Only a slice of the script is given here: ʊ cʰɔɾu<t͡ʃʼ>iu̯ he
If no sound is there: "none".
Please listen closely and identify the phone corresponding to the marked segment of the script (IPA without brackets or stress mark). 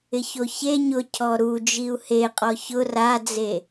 d͡ʒ